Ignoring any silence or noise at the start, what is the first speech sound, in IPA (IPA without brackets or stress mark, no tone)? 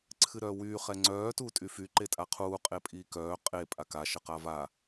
ǀʰ